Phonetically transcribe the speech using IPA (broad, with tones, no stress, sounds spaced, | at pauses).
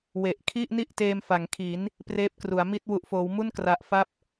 w e˨˩ ʔ kʰ i˥˩ ʔ n i˥˩ ʔ t eː˧ m f a˩˦ ŋ kʰ i˩˦ n | p r eː˦˥ p̚ k r u˩˦ a̯ m i˥˩ t̚ w u˨˩ ʔ f oː˩˦ w m u˥˩ n k r a˨˩ ʔ f a˦˥ p̚